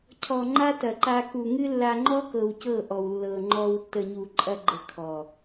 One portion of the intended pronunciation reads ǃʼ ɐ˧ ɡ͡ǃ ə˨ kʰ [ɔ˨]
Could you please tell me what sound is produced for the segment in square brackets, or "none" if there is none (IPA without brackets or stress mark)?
ɔ˨